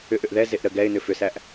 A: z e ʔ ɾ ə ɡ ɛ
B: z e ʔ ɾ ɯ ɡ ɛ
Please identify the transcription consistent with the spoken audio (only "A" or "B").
A